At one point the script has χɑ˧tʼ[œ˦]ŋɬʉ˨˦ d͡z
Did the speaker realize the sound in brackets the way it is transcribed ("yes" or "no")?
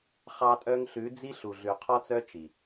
no